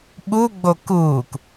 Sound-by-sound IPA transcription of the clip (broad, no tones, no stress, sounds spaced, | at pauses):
ɓ u ɡ͡b o k uː k